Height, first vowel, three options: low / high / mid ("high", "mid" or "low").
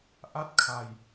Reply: low